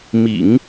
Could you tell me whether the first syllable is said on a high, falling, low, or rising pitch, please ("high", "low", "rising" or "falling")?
low